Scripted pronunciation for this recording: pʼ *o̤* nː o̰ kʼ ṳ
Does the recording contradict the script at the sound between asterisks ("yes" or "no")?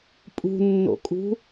yes